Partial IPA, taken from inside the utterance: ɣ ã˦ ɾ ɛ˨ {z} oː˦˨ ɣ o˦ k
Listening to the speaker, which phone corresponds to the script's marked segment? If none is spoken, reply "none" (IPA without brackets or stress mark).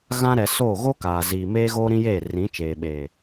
s